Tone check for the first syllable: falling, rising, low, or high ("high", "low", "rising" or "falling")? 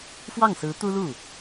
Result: falling